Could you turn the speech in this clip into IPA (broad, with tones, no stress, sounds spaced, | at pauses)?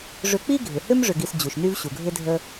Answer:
ʐ ʏ˧ k͡p i˥ ɡʱ ɪ˩ h ʏ˥ m ʐ ʏ˧ ɡ i˧ s d͡ʑ u˩ ʃ n y˥ v ɕ u˩ ɡʱ ɪ˥ dʱ ə˧